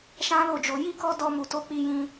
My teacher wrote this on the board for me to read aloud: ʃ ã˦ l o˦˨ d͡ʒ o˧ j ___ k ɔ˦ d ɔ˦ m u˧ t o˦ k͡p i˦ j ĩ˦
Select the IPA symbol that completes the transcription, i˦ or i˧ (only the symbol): i˦